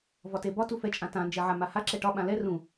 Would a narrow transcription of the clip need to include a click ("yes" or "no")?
yes